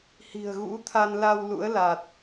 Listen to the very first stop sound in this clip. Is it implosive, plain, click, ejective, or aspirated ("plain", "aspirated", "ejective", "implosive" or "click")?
aspirated